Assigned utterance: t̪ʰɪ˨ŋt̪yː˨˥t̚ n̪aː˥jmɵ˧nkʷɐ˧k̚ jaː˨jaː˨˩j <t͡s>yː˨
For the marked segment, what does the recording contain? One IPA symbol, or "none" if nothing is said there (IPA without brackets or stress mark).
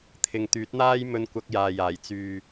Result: t͡s